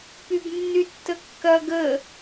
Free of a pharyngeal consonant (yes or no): yes